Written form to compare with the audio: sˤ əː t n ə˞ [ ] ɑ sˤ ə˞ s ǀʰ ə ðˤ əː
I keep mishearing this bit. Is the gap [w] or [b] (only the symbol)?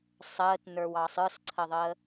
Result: w